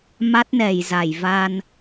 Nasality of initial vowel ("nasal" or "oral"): oral